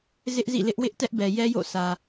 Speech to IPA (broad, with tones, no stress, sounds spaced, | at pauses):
z ɪ˦ ʔ z ḭ˦˨ l ɪ˦ ʔ w ɪ˦ ʔ t ɛ˦ ʔ b ɛ˨ j ɛ˦ j o̰˦˨ s ä˨